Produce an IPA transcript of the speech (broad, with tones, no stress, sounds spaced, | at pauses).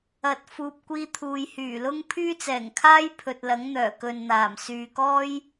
ɐ˨ t̚ f uː˨ p̚ kʷ iː˧ t̪ʰ uː˨ j h yː˨˩ l ʊ˥ ŋ pʰ yː˥ t͡s ɛː˨˩ ŋ kʰ aː˥ j pʰ ɵ˨ t̚ l ɐ˨˥ ŋ n̪ œː˨˩ k ɵ˨ n n̪ aː˨˩ m s yː˨ k ɔː˥ j